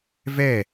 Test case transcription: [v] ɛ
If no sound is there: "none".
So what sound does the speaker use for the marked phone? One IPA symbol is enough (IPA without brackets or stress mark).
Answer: v